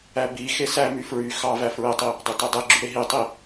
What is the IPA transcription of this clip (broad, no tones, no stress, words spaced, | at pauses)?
æbixe sæmy fɹy xɑvæ fɹetˤi | dˤøtødˤeɡ͡ǁy ɾeɦitˤi